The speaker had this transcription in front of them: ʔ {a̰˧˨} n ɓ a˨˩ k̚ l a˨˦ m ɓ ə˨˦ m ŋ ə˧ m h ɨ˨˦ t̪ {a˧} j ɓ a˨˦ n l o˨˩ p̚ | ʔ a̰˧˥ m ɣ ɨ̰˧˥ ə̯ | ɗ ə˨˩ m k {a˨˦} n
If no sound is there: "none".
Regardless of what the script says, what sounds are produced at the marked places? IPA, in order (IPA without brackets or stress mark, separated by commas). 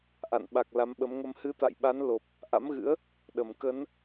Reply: a̰˧˨, a̰˧˨, ə˨˦